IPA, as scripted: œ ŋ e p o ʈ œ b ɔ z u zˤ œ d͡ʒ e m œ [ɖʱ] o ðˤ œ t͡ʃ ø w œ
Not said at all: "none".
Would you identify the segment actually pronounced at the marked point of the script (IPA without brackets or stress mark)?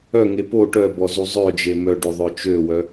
ɖ